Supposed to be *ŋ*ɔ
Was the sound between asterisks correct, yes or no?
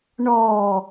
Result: no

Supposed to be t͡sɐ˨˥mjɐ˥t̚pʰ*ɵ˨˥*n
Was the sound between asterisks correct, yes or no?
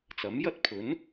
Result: yes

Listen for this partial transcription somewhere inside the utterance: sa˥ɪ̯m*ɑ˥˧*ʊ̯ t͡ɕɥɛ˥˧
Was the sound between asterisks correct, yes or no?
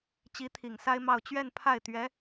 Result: yes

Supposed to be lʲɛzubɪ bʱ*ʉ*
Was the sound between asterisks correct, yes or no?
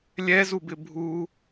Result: no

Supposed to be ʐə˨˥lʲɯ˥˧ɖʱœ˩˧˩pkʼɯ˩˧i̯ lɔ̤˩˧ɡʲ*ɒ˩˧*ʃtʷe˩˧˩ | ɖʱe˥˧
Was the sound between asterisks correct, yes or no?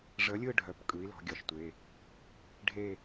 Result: yes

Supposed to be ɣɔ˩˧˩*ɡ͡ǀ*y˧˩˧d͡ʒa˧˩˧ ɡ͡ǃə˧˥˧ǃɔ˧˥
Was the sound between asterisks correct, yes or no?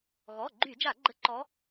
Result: no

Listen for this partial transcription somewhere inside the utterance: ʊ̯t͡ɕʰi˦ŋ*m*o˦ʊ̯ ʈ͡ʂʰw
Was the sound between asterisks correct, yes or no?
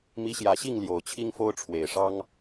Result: no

